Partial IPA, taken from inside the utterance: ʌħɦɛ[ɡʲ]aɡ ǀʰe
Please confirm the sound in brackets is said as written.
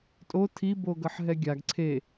yes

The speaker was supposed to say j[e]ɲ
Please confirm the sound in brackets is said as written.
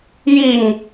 no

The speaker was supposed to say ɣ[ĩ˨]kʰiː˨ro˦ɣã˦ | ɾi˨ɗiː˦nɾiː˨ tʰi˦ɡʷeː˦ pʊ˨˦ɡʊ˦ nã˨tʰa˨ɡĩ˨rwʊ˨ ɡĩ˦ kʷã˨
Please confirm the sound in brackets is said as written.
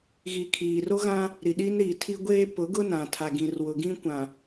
no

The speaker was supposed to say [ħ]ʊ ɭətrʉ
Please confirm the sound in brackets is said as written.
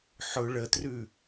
yes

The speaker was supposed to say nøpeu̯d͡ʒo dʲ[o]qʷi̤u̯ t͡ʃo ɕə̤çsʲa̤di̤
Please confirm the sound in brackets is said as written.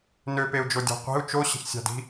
no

